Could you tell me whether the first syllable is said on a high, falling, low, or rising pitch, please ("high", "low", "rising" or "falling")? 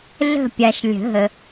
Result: falling